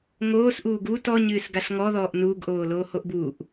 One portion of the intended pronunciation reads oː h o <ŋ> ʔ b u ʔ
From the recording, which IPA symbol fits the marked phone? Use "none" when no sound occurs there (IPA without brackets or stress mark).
none